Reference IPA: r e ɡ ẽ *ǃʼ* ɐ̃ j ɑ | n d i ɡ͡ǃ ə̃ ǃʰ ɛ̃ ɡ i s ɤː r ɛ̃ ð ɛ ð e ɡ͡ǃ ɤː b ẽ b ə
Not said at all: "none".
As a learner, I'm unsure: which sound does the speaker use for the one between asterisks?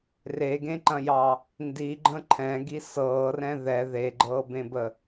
ǃ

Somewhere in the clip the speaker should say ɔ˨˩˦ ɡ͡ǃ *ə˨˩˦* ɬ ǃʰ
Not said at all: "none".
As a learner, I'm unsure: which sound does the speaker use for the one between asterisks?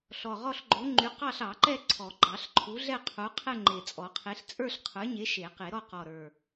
ɑ˨˩˦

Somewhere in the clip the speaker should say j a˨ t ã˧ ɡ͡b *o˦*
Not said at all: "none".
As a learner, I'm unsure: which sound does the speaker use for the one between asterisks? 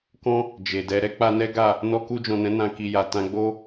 o˦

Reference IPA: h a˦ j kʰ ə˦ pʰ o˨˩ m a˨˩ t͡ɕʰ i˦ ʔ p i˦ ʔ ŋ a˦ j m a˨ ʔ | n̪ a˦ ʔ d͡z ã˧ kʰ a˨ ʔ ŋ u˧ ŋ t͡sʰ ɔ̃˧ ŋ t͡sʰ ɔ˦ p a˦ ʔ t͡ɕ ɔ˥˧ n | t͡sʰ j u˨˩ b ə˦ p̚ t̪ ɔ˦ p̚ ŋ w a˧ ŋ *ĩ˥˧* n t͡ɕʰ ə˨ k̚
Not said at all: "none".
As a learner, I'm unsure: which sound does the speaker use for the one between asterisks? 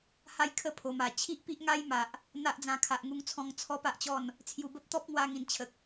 ĩ˨˩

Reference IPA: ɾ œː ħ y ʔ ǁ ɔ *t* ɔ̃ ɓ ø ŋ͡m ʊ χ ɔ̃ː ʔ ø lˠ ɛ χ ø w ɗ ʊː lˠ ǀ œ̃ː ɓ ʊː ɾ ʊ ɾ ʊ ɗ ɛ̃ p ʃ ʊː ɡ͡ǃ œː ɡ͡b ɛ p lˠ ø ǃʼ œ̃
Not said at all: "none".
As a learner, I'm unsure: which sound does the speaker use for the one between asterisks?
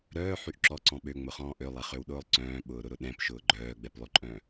ǀ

